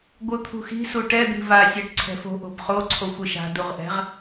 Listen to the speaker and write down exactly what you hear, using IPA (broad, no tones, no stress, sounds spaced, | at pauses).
ɡʷ ɯ t̪ʰ ṳ x i̤ s u ʈ ɛ d̪ i̤ v a sʲ e ʈ ǀʰ ɛ̤ f o̤ ʔ o̤ b χ o ǀʰ o xʷ ɯ ʃ a̤ d u ʁ ʔ ɛ̤ ʁ